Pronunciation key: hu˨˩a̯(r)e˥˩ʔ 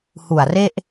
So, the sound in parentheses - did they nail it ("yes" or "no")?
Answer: yes